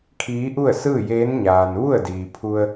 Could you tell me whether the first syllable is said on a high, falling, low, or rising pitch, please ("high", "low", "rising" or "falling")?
rising